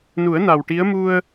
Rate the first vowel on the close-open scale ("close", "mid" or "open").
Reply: close